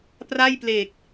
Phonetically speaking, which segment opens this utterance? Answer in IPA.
p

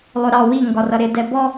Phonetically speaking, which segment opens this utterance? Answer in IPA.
lˠ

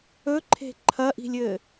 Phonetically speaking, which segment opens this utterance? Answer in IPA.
ɵ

